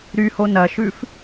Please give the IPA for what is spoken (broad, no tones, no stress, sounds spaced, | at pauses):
ɾ y h o n ɐ ʃ ʉ f